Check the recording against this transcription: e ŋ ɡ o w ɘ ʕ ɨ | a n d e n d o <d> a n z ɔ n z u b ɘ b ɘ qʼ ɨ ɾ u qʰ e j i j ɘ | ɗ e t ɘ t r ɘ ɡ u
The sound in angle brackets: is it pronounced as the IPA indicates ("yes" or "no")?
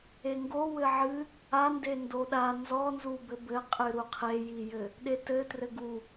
no